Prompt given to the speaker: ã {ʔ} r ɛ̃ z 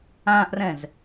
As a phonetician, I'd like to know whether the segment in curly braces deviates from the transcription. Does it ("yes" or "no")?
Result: no